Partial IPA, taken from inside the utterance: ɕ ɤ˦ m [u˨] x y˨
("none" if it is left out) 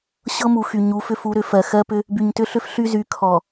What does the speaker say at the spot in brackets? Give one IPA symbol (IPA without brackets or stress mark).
u˨